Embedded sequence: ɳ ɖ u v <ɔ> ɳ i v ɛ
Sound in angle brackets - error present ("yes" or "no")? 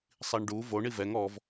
yes